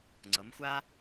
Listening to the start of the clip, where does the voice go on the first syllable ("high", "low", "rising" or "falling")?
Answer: rising